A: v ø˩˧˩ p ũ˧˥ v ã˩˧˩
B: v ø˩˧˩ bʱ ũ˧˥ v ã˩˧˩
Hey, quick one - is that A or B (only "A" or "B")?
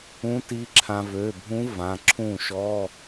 B